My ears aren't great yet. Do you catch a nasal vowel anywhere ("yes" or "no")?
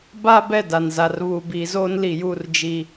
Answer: no